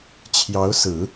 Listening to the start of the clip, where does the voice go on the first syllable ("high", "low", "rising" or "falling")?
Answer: rising